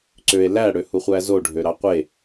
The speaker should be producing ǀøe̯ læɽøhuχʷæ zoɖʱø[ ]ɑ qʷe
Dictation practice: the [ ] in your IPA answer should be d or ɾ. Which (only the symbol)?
ɾ